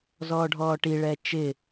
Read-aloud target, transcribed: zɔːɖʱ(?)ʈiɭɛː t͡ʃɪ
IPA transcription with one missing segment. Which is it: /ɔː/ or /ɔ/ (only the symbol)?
ɔː